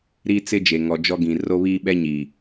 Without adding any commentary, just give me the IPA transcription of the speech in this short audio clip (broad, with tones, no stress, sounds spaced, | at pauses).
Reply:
ɾ i˦ t͡s ɪ˦ d͡ʒ e˨ ŋ ɔ˨ d͡ʒ ɔ˦ ɡ ĩ˨ r o˦ β iː˦ ɓ ɛ˦ ɲ iː˨